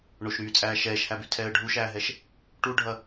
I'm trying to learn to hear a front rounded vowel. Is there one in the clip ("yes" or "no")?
yes